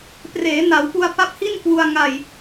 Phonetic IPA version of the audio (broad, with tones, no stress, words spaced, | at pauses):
preː˩˦na˩˦wpu˧a̯ pa˦˥p̚hi˥˩nkwu˧a̯ ŋa˧j